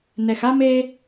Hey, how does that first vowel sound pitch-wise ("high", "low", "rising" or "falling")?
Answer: low